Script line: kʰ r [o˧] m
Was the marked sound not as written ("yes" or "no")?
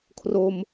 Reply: no